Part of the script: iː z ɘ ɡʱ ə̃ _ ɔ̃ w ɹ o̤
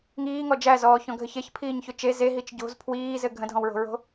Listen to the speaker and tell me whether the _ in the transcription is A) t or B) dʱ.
B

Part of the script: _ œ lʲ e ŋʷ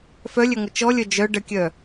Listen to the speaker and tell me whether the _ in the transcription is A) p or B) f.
B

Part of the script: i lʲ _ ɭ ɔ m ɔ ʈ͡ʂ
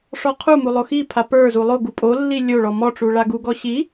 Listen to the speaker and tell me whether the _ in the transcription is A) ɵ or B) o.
B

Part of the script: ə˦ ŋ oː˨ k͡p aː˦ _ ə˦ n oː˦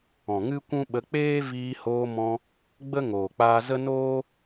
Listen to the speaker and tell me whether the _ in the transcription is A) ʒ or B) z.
B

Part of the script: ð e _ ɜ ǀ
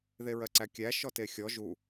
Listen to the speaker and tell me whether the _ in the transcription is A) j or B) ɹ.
B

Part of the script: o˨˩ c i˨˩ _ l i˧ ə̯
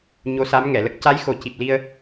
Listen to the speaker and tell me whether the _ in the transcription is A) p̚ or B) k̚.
A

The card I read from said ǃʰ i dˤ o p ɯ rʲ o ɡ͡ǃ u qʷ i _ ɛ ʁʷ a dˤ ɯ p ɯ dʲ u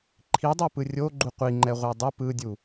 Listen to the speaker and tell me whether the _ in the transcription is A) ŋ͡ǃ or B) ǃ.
A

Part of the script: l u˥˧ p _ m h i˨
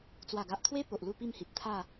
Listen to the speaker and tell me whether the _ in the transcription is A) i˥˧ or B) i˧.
A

